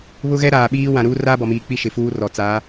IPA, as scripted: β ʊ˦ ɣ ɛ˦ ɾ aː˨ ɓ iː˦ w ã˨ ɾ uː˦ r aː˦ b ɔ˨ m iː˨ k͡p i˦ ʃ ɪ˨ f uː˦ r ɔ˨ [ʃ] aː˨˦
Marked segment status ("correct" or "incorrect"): incorrect